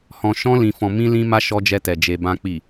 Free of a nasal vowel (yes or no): no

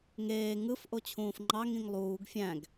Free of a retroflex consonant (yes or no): yes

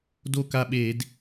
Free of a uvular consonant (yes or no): yes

